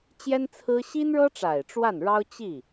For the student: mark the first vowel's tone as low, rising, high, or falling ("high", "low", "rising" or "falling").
high